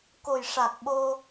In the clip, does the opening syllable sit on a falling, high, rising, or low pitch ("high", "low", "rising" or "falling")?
low